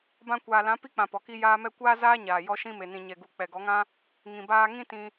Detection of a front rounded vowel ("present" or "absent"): absent